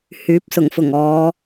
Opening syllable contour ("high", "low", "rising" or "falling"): rising